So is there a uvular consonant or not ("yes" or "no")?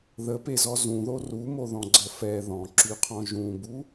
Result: yes